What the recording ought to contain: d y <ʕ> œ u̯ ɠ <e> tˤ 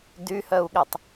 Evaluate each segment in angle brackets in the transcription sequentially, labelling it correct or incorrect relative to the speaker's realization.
incorrect: h, correct

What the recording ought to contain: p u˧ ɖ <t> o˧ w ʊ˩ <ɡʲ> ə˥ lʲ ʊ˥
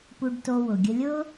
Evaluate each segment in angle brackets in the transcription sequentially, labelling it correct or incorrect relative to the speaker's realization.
correct, correct

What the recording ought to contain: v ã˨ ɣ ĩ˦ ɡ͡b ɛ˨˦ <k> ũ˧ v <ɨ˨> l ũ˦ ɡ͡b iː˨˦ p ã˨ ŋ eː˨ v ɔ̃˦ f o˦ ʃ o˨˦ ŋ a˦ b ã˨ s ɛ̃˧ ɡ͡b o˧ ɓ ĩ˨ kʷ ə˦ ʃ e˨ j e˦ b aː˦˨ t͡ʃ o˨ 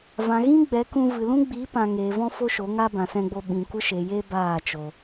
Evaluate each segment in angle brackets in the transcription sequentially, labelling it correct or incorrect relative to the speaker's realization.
correct, correct

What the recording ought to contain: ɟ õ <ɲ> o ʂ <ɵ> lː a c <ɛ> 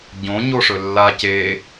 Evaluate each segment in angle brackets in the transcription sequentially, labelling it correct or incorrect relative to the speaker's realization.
correct, correct, incorrect: e

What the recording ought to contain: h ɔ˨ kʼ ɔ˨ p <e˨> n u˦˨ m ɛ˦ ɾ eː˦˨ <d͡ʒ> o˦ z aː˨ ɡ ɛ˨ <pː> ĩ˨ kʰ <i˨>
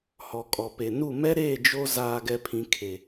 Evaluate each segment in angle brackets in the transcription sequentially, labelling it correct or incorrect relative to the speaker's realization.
correct, correct, incorrect: pʰ, incorrect: e˨

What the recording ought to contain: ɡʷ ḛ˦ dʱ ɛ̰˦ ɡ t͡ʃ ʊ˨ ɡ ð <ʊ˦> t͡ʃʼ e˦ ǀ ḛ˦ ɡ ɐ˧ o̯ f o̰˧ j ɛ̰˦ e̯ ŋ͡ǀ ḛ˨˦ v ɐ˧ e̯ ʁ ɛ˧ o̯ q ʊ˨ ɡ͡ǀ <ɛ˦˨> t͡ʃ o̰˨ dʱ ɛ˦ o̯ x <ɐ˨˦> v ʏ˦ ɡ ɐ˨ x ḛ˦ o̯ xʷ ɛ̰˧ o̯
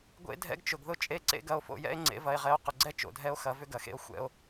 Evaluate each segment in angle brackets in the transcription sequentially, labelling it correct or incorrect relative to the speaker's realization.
correct, incorrect: ɛ˦, correct

